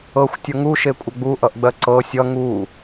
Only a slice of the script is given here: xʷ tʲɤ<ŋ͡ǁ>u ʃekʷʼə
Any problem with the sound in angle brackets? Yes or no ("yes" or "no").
yes